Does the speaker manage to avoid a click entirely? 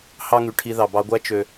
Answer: yes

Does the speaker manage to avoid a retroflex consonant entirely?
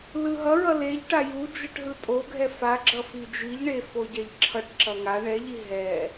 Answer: no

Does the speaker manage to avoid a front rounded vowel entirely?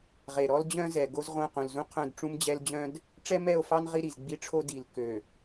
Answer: no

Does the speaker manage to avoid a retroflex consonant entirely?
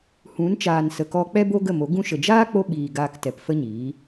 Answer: yes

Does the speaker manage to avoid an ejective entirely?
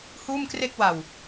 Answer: yes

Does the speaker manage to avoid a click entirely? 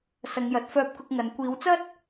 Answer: yes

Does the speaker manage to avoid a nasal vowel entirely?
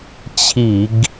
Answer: yes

